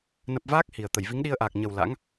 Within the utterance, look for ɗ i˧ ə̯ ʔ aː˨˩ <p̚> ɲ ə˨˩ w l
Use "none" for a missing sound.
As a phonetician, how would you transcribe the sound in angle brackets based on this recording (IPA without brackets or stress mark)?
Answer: k̚